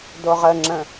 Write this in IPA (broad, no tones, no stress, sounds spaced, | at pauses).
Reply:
d o ʁ ə ŋ͡ǁ ə̃